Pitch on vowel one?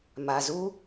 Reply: low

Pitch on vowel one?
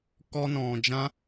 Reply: high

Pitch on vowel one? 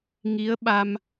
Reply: rising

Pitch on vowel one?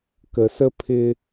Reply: low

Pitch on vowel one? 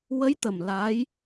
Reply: rising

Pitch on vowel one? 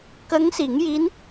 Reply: rising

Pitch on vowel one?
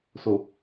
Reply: low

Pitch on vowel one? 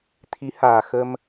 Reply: rising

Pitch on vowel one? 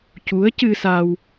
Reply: rising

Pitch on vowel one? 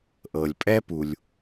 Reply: low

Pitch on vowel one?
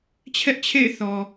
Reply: high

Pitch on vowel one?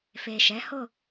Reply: low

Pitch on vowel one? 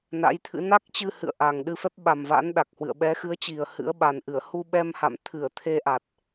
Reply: rising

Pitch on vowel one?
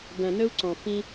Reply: low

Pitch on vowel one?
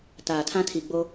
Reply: low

